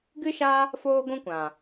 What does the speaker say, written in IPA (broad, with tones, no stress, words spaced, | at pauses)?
ɡɨ˦ʃa˦ | foː˦ɡʷũ˦kʷã˨